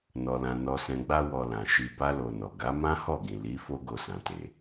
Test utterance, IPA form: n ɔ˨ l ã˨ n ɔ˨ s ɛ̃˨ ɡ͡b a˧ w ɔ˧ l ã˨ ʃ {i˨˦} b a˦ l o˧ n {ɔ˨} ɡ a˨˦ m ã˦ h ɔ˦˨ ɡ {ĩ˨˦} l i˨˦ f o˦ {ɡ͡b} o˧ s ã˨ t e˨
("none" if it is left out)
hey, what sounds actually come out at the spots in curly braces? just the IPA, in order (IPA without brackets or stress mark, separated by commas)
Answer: i˧, ɔ˨, ĩ˨, ɡ